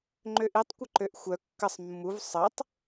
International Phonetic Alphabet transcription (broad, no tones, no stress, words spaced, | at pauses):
ŋ͡ǃøʔitˤkʷə ǃøʔxʷœ kːəsˤ mːuv sˤətˤ